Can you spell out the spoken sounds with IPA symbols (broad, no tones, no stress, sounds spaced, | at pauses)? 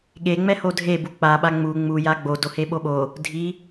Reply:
ɠ e ŋ͡m ɛ h o dʱ e b u k͡p a ɓ a ŋ͡m u ŋ͡m u j a ɡ͡b o d o h e ɓ o ɓ o | dʱ i